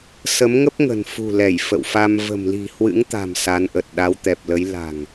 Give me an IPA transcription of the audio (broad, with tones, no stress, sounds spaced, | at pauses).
s ə˨˦ m ŋ ə˦˥ p̚ ŋ ə̤˨˩ n f ṳ˨˩ l ɛ˧˩ j f ə̰˧˨ w f a˧ m v ə̤˨˩ m l i̤˨˩ h w ɨ̰˧˥ ŋ t̪ a̤˨˩ m s a˨˦ n ʔ ə˨˩ t̚ ɗ a˨˦ w t̪ ɛ˨˩ p̚ l ə˨˦ j l a̤˨˩ ŋ